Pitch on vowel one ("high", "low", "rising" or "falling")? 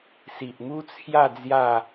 low